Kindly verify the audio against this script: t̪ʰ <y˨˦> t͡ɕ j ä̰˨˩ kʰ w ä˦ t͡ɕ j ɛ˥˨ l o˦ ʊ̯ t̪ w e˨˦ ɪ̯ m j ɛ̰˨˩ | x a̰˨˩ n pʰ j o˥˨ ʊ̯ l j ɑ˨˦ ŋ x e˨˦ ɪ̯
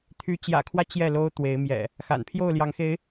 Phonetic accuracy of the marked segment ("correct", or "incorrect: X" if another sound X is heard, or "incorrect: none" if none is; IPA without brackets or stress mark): correct